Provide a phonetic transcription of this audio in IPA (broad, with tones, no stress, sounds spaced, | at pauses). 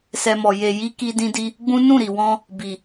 s ɛ˧ m ɔ˨ j e˨ j i˧ k i˧ d ĩ˧ d i˧ | ɡ͡b ũ˦ n ũ˦˨ ɾ i˨ w ɔ̃˧ | b i˨